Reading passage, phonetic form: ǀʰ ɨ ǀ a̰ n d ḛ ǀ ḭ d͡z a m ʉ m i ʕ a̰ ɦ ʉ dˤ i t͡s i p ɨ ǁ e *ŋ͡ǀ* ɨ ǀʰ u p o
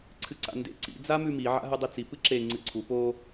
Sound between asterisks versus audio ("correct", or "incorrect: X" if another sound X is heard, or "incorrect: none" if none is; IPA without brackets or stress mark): correct